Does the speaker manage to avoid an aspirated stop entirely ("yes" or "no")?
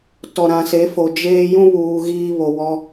yes